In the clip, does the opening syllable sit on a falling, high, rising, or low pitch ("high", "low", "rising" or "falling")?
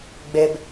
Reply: high